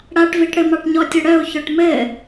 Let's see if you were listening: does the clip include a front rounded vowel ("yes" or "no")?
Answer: yes